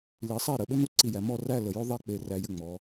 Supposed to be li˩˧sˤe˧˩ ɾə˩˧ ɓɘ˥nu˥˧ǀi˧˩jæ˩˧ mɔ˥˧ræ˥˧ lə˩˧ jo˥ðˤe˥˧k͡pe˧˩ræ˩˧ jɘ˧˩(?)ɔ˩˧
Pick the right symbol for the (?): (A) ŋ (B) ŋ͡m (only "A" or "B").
B